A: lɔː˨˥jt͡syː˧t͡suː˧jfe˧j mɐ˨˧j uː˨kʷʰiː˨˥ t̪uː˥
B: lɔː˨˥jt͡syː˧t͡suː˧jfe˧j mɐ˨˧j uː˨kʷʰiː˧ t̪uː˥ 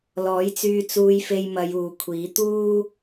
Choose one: A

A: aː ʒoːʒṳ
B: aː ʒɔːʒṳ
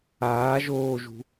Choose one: A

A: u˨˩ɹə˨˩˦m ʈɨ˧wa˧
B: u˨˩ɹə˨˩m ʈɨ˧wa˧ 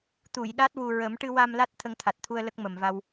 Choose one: A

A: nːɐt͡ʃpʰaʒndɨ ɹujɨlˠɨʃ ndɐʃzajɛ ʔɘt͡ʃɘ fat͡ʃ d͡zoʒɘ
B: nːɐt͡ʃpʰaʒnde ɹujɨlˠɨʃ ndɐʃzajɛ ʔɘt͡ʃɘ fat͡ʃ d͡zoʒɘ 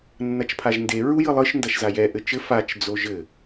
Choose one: B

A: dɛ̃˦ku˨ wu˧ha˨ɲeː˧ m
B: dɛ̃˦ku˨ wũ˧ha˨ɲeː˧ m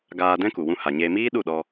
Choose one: B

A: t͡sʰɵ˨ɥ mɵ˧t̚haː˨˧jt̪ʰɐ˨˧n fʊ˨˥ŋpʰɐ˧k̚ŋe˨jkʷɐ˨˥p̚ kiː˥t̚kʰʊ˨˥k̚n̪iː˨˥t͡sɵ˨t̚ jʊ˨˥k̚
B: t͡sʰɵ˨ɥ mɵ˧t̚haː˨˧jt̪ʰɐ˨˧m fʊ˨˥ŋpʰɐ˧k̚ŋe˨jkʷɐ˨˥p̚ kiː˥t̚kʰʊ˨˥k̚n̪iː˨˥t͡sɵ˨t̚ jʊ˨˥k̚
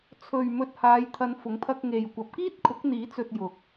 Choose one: A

